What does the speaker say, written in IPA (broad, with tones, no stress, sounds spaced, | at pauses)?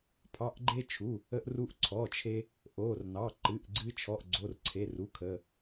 pʰ ɑ˩˧˩ ʔ ɡ͡ǃ e˧ t͡ʃʰ u˩˧˩ | ə˧ ʔ r u˧ ʔ ǀʰ ɔ˩˧˩ t͡ʃʰ e˧ | ʔ o˩˧˩ r n ɑ˩˧˩ ǃ ɨ˩˧˩ ʔ ɡ͡ǀ ɨ˧ t͡ʃʰ ɔ˩˧˩ ʔ ɡ͡ǀ o˩˧˩ r ǀʰ e˩˧˩ r u˩˧˩ kʰ ə˩˧˩